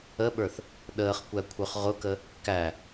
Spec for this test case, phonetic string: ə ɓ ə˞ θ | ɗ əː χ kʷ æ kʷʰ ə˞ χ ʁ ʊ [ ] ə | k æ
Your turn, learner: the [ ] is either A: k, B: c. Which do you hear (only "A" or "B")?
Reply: A